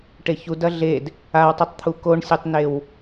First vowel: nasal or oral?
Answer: oral